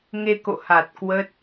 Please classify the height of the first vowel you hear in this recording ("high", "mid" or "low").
mid